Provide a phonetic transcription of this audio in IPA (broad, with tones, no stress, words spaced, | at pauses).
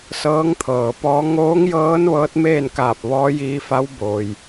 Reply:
sɤː˧˥ŋt̪ʰɤː˩pɔː˧˥ ŋoː˧˥ŋjɤː˧˥n ʋɤː˧˥t̚meː˥˨nkaː˧˩p̚ʋɔː˧˥ jiː˧fa˧˥w boː˩j